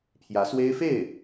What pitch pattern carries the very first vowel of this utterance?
rising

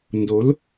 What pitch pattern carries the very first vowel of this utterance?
rising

